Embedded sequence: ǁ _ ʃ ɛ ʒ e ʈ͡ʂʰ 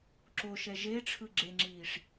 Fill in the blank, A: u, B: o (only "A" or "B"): B